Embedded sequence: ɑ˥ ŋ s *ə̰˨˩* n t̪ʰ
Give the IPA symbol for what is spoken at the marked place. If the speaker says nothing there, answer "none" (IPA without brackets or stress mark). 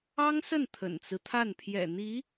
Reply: ə˥˩